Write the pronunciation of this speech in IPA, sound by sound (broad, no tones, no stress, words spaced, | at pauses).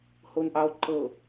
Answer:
honʔɑo̯ ǃɤ